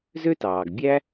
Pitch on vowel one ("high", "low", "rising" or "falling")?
high